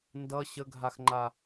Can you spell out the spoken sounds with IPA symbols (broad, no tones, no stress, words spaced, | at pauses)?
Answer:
ndʌ ɕəɡʱaxŋ͡ǃa